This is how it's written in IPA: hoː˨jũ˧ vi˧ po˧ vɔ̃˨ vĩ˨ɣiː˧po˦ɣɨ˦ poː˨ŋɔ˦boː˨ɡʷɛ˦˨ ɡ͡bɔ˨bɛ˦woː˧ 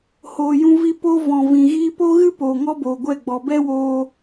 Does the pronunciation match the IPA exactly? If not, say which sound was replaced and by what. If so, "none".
none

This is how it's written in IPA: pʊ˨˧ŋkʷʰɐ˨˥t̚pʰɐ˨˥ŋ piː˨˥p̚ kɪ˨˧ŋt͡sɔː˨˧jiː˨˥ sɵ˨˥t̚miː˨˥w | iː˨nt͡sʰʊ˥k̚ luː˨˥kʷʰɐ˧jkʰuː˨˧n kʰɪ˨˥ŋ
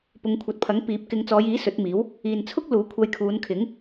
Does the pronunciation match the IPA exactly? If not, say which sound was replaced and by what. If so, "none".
none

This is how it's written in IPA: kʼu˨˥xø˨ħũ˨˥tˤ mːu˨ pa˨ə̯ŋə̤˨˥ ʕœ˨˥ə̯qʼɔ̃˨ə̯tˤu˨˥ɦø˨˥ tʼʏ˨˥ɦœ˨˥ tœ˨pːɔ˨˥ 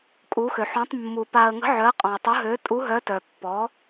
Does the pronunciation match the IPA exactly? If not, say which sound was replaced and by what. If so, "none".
ʏ˨˥ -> u˨˥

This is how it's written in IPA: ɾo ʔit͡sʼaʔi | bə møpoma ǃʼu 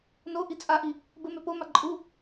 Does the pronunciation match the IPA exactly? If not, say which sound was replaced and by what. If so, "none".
ɾ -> n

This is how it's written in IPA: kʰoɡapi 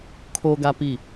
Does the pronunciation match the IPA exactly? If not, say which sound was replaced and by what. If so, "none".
none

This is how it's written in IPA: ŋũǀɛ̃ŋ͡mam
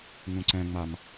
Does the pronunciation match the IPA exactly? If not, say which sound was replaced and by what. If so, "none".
none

